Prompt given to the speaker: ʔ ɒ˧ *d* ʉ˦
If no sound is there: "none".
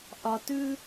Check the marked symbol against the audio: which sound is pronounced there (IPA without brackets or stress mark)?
t